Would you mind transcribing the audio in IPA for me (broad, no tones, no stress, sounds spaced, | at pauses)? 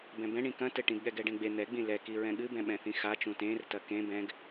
b ɛ̃ b ɛ̃ ɳ ĩ k ɐ̃ t ɘ ʈ ĩ ɡ ɠ ɛ ɡ ɛ ɖ ẽ ɡ͡b e n̪ ɛ ɡ͡b ĩ l ɛ k i ɹ ɛ̃ ɠ ɨ b ɛ̃ ɓ ɛ̃ θ ĩ x a t͡ʃ ũ t ẽ r t ɐ k ẽ b ɛ̃ ɡ